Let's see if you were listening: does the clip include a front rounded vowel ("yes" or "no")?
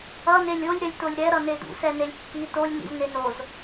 no